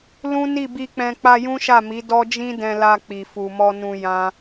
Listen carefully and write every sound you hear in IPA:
l ũ˦ n i˦˨ b i˧ k͡p ɛ̃˧ k͡p a˧ j ũ˦ ʃ a˦˨ m i˨˦ d ɔ˦ d͡ʒ ĩ˦ d ɛ̃˧ l a˧ k͡p i˨ f u˨ m ɔ˧ n ũ˧ j ã˦

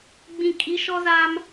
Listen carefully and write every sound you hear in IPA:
ɡ͡b ĩ˨ kʼ i˨˦ ʃ ɔ˦ z a˦ m

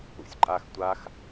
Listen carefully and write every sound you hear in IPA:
ṵ sʲ ǃʼ a x tʷ a x

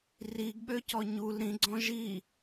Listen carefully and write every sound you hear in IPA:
r i ɡ ɓ ø c ɔ ɲ u l ɾ ĩ ɡ͡ǀ ɔ̃ ʒ i

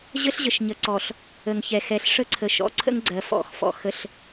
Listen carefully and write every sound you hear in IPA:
ʑ ə˦ ɬ ʑ ə˨ ʃ ɲ ə˨ ǀ ɔ˨ ɬ | ə˨ ŋ ç ɛ˨ x ɛ˨˦ ɬ ʂ ə˦ ǀʰ ə˨ ʃ ɔ̰˨ ǀʰ ə̰˦ ŋ ɡ͡ǀ ɜ˨ f ɔ̰˨˦ x f ɔ̰˨ x ə˨ ɬ

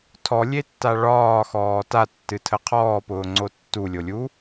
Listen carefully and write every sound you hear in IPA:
tʰ ɔ lʲ e tː a ɭ ɒː x ɔː t a tː ɨ tʰ ə qʰ ɔː p ʊː ŋ͡ǀ o tː u lʲ o lʲ u

